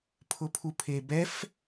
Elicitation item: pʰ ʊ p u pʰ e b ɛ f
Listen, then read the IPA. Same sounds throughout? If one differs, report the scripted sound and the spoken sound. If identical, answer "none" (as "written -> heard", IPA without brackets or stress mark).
p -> pʰ